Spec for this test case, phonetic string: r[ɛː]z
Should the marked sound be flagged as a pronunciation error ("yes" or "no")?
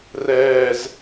no